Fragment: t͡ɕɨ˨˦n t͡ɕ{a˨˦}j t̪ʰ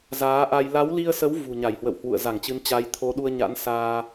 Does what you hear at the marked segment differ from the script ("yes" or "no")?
no